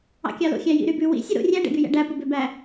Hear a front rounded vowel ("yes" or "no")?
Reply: yes